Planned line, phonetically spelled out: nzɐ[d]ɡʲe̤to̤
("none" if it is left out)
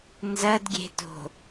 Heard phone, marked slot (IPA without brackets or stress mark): d